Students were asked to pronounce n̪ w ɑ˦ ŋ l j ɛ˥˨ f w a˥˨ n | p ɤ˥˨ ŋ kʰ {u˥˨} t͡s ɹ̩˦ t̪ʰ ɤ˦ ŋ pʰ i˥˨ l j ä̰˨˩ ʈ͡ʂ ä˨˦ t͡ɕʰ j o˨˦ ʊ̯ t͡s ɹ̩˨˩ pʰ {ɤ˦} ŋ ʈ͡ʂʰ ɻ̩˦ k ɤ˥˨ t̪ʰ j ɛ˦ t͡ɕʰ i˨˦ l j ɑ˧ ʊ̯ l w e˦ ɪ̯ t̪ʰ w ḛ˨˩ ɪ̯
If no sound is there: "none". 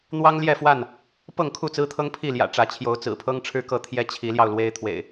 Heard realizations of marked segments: u˥˨, ɤ˦

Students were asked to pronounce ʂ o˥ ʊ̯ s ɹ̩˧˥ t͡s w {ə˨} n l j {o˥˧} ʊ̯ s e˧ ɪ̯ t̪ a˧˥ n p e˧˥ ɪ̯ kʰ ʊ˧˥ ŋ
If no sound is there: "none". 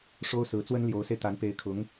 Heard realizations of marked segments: ə˥, o˧˥

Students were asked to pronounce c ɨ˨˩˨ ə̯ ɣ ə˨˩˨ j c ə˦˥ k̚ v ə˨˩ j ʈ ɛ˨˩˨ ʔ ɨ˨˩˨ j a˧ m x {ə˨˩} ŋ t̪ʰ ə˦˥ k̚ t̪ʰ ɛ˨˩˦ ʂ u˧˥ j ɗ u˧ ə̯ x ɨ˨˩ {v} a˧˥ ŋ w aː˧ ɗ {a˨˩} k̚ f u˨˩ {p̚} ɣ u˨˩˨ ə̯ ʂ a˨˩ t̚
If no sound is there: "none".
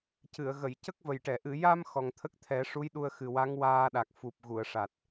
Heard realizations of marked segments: ɔ˨˩, w, a˨˩, p̚

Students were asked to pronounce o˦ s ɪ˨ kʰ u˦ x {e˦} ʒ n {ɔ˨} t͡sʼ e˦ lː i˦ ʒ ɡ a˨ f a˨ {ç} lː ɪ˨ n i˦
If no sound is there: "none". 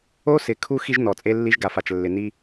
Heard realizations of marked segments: i˦, ɔ˨, t͡ʃ

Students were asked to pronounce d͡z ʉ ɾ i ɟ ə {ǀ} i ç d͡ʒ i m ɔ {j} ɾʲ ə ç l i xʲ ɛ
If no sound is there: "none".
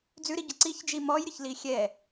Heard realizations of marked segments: ǀ, j

